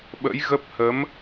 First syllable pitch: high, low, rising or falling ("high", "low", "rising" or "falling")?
rising